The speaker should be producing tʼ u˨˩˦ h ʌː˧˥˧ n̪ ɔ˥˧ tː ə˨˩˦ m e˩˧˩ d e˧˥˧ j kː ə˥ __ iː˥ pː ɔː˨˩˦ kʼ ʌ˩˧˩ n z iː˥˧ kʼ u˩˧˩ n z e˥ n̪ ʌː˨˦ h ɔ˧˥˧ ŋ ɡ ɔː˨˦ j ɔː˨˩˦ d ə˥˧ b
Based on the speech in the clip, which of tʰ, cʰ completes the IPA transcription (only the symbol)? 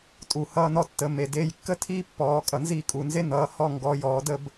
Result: tʰ